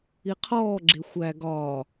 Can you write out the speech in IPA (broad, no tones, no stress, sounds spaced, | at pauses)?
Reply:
i qʰ ɔː ɡ͡ǁ e xʷ æ ɡ ɒː